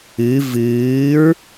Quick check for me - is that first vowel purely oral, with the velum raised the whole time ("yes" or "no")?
yes